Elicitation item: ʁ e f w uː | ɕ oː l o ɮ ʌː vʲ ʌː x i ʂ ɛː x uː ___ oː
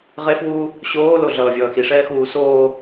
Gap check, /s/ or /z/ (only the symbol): s